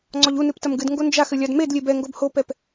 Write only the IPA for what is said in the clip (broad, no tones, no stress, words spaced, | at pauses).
ŋ͡ǀɔʎunɨp tɐmɡɨdŋɡo nd͡ʒax ɘlʲadmedlʲe bɛŋɡob hopɛp